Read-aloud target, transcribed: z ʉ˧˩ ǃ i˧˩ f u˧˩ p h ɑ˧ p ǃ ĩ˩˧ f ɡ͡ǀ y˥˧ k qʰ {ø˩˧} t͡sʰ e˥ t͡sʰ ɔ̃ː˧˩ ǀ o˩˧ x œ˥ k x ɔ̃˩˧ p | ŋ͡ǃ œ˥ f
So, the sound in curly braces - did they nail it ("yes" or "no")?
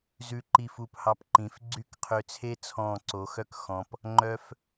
no